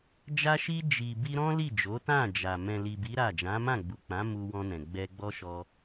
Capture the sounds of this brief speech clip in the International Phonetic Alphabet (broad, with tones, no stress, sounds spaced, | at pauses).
d͡ʒ a˧ ʃ i˧ d͡ʒ i˨ b i˧ ɾ ɔ̃˦ l i˦˨ d͡ʒ o˨˦ t ã˦˨ d͡ʒ a˨ m ɛ̃˨ l i˨ b i˨˦ ɾ a˦˨ d͡ʒ ã˨˦ m ã˦˨ ɡ͡b u˨ k͡p ã˨˦ m u˧ w ɔ̃˧ n ɛ̃˨ ɡ͡b ɛ˧ ɡ͡b ɔ˦ ʃ ɔ˧